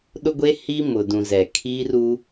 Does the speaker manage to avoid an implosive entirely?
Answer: no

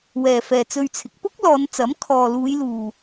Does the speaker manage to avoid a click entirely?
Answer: yes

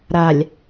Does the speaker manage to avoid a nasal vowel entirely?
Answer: yes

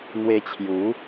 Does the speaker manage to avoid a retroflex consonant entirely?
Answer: yes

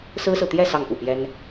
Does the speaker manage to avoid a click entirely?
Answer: yes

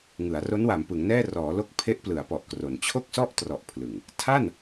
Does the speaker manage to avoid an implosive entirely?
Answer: yes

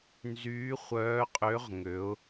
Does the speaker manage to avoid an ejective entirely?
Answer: no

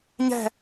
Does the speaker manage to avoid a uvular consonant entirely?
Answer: yes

